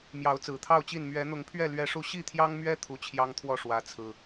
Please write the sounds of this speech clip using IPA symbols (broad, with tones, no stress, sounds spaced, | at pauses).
m j ɑ˨˦ ʊ̯ t͡s ɹ̩˨˩ t̪ʰ ɑ˥˨ ʊ̯ t͡ɕ i˥˨ n m ɥ ɛ˨˦ n̪ ʊ˨˦ ŋ pʰ ɥ ɛ˥˨ l ɥ ɛ˦ ʂ u˥˨ ɕ i˥˨ t̪ʰ j ɑ˦ ŋ m ɥ ɛ˦ t̪ʰ u˨˩ t͡ɕʰ j ɑ˦ ŋ t̪ʰ w ɔ˥˨ ʂ w ä˨˦ t͡sʰ ɹ̩˨˩